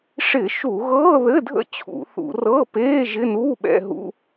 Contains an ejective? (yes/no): no